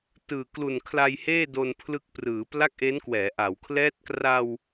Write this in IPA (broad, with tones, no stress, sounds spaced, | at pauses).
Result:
t ɯː˨˩ k l u˨˩ n kʰ l a˧ j h eː˥˩ d o˧ n pʰ l ɯ˦˥ k̚ p r ɯː˩˦ p l a˥˩ k̚ ʔ e˦˥ n k w ɛː˩˦ ʔ a˩˦ w kʰ l ɛː˦˥ t̚ k r a˧ w